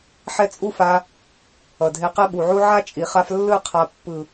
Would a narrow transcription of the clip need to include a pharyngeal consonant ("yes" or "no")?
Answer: yes